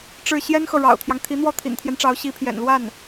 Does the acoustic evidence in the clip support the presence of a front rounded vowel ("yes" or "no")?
no